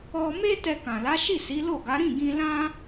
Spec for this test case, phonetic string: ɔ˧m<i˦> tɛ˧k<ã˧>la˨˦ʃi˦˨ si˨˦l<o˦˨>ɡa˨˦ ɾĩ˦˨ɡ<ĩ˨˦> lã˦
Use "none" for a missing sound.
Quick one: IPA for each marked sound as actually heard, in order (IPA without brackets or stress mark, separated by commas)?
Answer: e˦, ã˨, o˦˨, ĩ˧